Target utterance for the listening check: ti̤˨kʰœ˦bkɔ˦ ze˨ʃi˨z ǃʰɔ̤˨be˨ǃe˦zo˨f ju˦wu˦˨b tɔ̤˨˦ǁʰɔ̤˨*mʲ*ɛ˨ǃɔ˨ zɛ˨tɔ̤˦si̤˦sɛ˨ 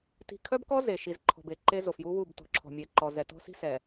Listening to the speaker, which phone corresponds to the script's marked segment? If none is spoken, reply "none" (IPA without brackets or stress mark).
mʲ